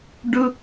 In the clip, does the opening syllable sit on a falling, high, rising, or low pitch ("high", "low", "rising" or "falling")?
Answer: high